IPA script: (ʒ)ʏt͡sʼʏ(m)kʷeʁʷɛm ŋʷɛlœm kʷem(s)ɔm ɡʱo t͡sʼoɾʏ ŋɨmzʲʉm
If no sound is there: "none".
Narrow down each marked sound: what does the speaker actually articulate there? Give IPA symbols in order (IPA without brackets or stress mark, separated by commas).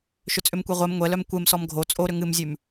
ʃ, m, s